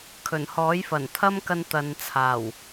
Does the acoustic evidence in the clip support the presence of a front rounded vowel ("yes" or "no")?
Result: no